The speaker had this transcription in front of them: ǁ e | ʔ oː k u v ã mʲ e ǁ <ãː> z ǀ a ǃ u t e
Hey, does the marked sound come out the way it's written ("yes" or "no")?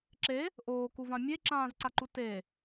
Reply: yes